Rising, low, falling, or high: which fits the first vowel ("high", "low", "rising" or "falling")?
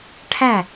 falling